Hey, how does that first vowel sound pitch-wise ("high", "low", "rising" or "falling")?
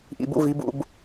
low